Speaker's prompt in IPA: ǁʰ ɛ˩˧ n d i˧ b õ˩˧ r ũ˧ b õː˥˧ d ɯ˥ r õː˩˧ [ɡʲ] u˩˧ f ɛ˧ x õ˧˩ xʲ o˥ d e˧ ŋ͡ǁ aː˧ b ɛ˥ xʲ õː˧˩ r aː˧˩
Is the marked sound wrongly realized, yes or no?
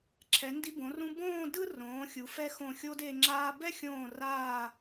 yes